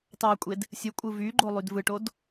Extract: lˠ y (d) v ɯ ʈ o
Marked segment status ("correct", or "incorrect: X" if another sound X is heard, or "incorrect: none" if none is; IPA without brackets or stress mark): correct